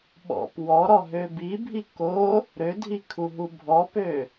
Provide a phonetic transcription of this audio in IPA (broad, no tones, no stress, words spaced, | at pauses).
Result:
ɓɔ̰p wɔɾɔɦø bibʱi ko | ɾødʱikʰuɦu bʱɔpø